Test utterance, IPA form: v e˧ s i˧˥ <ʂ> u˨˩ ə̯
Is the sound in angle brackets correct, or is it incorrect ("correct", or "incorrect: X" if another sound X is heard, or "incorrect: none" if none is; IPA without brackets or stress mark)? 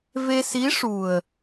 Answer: correct